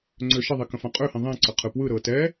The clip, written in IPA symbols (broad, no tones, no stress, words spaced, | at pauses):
ŋ͡ǀøʃəðˤi kə̃fãqʼøhĩ ðˤĩǀə qʰɯpwɯɾɤː tɛ